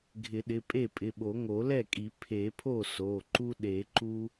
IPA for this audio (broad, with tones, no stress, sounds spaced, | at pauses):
ɡʱ ɪ˨˩˦ ɗ ɪ˩˧˩ pʼ e˥˩ pʼ ɪ˩˧˩ ɓ o˨˩˦ ŋ o˨˩˦ l ɛ˥˩ kʼ i˨˩˦ pʰ e˨˩˦ pʰ o˥˩ s o˩˧˩ ǃ u˦ ɗ e˨˩˦ ǃ u˦